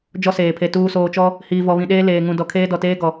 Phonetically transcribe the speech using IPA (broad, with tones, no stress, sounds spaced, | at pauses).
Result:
d͡ʒ ɔ˦ s eː˨ pʰ e˨ t uː˨ s oː˨ t͡ʃ ɔ˦ | h iː˨ v ɔ˨ β ĩ˨ ɗ eː˦ l eː˨ ŋ ũ˨ d ɔ˨ kʰ eː˦ d ɔ˨ t eː˦ ɡ ɔ˨